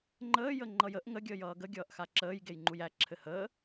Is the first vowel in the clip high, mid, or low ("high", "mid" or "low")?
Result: mid